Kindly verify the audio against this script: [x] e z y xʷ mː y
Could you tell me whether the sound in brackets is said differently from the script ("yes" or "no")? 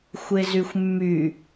yes